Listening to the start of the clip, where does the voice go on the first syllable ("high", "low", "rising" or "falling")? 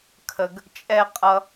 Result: low